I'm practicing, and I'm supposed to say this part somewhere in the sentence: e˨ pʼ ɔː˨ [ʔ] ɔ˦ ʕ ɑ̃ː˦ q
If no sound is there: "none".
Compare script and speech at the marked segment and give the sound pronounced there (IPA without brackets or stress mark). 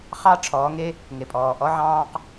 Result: ʔ